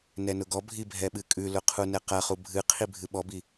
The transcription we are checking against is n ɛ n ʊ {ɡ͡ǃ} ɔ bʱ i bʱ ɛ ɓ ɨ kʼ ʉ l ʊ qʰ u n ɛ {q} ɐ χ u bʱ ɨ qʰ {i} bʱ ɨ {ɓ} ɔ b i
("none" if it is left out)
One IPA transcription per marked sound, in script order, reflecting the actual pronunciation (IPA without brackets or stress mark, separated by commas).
ɡ, q, i, ɓ